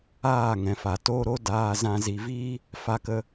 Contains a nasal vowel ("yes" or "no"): yes